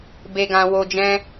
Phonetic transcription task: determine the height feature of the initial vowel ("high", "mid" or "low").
mid